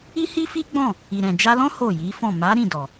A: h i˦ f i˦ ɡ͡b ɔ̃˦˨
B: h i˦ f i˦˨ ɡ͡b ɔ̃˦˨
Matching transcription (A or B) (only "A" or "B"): A